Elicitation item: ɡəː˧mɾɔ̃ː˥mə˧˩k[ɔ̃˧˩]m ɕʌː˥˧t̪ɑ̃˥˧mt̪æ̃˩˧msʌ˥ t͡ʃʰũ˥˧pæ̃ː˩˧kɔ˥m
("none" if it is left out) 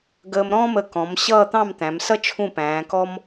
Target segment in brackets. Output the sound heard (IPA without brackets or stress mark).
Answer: ɔ̃˩˧